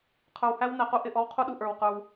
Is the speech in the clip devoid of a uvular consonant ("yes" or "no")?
no